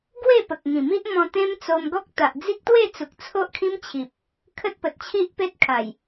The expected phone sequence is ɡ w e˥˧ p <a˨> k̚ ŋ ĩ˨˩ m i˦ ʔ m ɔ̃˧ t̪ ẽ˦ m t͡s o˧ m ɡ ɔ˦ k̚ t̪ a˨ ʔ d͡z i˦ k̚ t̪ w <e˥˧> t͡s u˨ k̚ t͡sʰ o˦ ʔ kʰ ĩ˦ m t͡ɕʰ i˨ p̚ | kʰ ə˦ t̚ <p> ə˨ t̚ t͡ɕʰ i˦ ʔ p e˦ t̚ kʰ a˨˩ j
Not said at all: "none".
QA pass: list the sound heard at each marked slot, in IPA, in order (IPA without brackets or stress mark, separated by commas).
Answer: ə˨, e˥˧, p